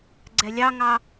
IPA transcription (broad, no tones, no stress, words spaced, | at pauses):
ɡ͡ǀɛlʲɑŋɑ